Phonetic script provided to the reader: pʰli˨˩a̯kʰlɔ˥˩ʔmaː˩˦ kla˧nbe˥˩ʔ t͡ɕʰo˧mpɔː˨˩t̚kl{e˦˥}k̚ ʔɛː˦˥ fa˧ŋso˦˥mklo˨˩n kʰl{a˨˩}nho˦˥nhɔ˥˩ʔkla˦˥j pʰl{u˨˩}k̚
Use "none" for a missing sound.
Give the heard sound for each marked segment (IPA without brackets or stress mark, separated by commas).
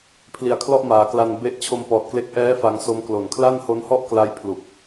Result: e˦˥, a˥˩, u˨˩